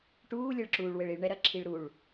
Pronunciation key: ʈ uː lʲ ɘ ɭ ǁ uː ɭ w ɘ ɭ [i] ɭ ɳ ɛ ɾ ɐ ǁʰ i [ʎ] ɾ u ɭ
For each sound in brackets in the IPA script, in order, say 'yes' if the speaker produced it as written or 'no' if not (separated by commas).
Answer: yes, no